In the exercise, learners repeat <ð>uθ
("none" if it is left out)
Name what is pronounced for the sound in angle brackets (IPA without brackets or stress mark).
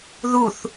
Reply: ð